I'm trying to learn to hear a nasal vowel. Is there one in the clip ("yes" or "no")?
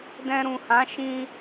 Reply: yes